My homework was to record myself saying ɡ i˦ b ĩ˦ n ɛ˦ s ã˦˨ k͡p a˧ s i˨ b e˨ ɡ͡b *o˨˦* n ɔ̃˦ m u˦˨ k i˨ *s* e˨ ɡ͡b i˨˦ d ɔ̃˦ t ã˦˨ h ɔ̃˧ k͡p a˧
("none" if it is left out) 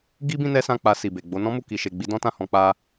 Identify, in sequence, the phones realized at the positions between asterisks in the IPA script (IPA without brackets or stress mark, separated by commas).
o˨˦, ʃ